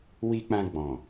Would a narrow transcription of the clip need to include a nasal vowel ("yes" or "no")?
yes